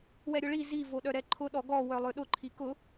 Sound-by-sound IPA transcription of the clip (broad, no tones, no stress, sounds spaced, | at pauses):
w ɛ ɾʲ ʊ ɭ i z i v o ɗ œ ɾ ɛ ǃʰ ʊ ɗ ɔ ɡ ɔ w œ lˠ ø ɗ ʊ ǃʰ i k ʊ